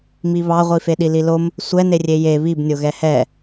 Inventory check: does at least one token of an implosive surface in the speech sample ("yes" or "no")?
yes